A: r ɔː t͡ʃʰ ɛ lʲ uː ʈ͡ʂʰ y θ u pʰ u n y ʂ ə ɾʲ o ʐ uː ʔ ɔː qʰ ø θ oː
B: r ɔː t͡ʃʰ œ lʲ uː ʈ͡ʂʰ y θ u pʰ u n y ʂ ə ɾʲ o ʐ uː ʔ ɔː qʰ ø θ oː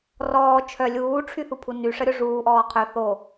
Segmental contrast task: B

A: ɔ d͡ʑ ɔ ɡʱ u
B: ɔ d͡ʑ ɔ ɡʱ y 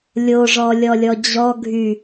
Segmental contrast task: B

